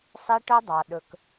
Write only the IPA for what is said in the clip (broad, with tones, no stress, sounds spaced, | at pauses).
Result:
sˤ e˦ ʈ œ˦ dˤ ɑ˨ ɗ ɵ˨ k